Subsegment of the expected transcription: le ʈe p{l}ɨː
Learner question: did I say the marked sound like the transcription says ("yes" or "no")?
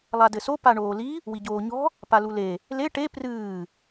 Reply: no